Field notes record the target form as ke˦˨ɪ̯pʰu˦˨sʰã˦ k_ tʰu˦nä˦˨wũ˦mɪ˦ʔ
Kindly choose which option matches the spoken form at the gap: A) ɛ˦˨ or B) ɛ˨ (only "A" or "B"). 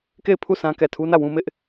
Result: A